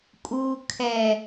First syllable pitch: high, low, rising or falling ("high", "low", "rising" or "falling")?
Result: low